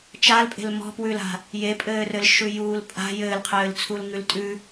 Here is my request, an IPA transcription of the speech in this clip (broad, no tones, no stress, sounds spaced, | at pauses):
t͡ʃ a l pʼ e̤ l m ɔ̤ p w ʉ l a̤ | j e pʼ ɘː r ɘ l ʃ ʉ j uː l pʼ a̤ j ɘː l qʰ ɘː l t͡sʰ u l ŋ ʉ l tʼ ʉ